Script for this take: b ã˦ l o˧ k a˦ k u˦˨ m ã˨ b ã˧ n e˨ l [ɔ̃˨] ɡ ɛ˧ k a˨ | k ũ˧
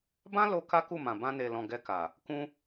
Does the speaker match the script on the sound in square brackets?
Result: yes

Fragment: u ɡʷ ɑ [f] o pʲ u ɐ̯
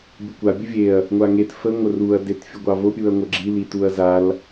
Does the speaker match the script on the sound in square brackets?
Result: no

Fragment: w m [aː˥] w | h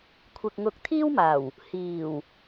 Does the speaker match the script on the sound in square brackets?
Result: no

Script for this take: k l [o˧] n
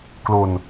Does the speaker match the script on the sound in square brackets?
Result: yes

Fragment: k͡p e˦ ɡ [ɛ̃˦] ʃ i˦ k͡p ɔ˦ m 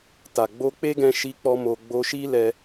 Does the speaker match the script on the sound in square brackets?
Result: no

